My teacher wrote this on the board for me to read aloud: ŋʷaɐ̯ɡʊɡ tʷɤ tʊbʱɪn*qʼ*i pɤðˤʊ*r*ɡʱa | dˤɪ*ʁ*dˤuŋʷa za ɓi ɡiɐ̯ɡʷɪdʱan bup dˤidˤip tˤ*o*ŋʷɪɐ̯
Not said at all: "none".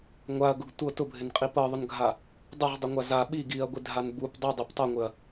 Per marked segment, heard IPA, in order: qʼ, n, ʁ, ɤ

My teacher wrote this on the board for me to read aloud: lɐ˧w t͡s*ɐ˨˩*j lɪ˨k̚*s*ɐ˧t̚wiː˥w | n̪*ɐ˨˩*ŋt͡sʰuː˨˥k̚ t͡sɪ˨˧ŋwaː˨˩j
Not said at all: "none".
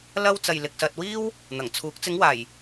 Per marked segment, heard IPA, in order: ɐ˨, s, ɐ˨˩

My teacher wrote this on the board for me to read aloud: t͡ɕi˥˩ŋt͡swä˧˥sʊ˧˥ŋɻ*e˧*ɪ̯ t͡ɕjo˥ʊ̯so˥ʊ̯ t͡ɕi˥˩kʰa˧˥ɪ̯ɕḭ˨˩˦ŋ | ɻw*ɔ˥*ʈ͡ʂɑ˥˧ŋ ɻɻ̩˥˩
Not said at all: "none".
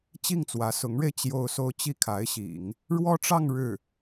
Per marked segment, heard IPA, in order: e˧, ɔ˥

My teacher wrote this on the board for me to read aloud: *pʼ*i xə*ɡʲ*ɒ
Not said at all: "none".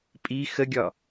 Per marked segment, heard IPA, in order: pʼ, ɡʲ

